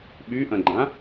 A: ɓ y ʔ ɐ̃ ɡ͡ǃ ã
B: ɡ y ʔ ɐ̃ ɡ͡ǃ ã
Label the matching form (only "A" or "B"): A